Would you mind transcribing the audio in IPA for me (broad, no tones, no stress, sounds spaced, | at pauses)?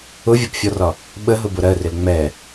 ʊ vʲ ɔ p fʲ ɔ r ɒ | ɓ ə ɦ ʊ b ʊ ɾ ɜ r ɪ l ŋ͡m ɛ